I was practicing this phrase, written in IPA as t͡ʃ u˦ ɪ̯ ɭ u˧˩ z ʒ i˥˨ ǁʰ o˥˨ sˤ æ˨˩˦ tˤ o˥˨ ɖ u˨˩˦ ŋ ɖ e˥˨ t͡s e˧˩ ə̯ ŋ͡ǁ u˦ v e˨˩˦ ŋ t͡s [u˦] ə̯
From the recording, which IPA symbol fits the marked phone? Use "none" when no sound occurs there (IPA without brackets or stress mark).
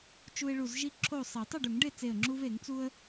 u˦